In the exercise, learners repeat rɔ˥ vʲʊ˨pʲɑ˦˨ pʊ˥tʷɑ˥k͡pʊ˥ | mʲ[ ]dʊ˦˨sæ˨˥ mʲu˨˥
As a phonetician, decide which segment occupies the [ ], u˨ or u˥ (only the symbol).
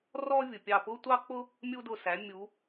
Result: u˥